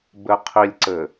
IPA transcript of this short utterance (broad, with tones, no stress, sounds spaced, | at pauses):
b ɘ˨ qʰ i˨ lʲ ǀ ɘ˨